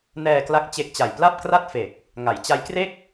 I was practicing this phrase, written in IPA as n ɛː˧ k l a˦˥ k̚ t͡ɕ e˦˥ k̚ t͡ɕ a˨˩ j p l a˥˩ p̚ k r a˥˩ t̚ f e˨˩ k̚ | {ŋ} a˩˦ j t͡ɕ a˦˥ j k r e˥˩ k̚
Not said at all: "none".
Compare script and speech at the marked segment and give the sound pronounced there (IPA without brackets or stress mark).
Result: ŋ